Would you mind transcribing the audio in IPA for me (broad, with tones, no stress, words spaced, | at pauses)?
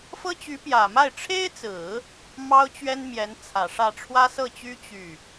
fɤ˥t͡ɕy˧˥pjä˨˩ma˥˩ɪ̯ ʈ͡ʂʰe˥ɪ̯t͡sɹ̩˨˩˦ | mɑ˥ʊ̯t͡ɕɥɛ˥nmjɛ˧˥n t͡sʰä˨˩ʂä˥˩ ʈ͡ʂʰwä˥sɤ˥˩t͡ɕy˥ t͡ɕy˥˩